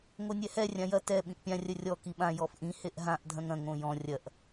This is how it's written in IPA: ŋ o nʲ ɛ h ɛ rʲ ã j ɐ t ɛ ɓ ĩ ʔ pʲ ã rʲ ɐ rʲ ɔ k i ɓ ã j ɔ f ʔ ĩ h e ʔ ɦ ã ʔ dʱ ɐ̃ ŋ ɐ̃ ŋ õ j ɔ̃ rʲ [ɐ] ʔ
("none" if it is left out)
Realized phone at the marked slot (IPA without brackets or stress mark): ɐ